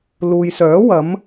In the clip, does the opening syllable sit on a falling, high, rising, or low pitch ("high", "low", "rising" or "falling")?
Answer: low